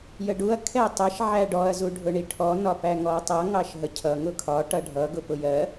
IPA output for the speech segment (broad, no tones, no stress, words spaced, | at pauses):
jəɖuɐ̯ kʰɛtˤəʃ ʕæɖɔɐ̯ zuɖʱʊɳiʈʰɔ nɒpæŋɔɐ̯tˤʌ ŋɑʃɦəcʰʌ ŋʊkʰɒ ʈʌɖʱʌ ɡʊpʊjɜ